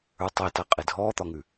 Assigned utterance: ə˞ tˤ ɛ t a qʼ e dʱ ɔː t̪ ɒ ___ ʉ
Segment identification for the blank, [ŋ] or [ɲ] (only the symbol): ŋ